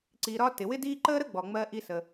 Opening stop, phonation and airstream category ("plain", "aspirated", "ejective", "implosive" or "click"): click